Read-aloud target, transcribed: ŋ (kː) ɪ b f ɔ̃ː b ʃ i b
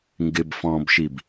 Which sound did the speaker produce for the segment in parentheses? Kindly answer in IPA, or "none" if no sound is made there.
ɡ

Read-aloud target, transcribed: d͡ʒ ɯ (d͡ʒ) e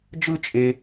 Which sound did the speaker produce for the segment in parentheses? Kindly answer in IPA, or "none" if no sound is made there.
t͡ʃʼ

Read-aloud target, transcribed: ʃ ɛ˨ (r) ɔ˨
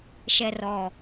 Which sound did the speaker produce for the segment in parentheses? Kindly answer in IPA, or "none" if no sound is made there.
r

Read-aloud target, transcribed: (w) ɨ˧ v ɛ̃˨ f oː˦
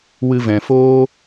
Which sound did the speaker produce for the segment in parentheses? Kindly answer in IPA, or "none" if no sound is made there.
w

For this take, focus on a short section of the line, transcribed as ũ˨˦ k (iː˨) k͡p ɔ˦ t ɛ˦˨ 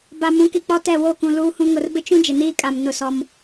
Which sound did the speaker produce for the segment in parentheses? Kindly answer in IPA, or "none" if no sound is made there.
i˨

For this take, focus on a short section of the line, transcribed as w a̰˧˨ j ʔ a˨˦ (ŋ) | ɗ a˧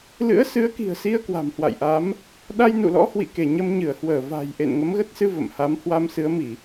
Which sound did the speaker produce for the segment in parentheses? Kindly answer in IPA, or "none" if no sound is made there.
m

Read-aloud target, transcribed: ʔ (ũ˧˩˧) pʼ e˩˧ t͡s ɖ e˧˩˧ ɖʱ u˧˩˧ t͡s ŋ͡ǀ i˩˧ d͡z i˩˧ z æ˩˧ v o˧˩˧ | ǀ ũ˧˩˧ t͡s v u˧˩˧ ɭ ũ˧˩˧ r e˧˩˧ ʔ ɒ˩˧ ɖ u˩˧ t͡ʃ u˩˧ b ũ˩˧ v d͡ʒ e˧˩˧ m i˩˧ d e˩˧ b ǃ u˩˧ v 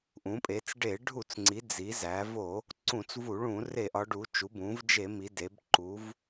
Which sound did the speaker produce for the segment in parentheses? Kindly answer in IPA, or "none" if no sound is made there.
ũ˩˧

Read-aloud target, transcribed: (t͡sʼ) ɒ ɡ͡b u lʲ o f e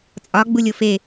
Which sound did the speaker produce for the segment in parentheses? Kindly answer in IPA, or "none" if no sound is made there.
t͡sʼ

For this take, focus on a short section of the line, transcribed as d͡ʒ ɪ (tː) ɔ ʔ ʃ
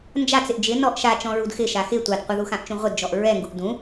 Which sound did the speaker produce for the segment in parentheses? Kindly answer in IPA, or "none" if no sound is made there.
n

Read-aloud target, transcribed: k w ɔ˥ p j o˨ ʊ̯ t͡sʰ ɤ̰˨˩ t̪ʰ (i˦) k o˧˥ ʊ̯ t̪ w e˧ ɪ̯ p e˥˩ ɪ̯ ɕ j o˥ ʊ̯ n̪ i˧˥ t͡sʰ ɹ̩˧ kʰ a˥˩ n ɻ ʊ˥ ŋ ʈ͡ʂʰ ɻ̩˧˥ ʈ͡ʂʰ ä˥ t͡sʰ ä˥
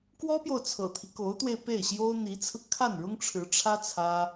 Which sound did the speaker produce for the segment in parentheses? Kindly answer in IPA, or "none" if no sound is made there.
i˦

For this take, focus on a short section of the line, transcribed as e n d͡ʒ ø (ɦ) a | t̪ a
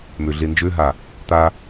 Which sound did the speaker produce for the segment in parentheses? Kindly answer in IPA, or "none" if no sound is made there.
ɦ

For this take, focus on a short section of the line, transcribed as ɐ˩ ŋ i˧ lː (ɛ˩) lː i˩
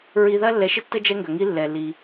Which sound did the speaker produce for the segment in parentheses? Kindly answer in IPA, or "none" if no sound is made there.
ɛ˩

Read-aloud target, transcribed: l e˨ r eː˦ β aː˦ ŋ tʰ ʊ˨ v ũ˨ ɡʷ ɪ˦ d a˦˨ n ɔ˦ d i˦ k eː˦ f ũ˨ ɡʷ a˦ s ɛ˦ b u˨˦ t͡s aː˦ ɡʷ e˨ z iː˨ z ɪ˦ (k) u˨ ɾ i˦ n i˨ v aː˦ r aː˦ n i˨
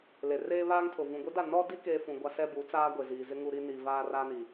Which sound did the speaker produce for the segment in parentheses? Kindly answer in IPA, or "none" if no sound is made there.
ŋ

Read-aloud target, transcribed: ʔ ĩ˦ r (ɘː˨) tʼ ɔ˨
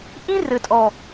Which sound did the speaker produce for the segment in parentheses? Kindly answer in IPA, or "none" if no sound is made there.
ɘ˨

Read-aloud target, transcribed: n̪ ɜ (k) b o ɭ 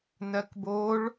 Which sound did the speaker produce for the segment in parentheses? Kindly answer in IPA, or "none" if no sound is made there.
k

